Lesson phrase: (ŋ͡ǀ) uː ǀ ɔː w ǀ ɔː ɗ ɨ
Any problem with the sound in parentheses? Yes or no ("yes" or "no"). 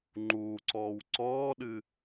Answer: yes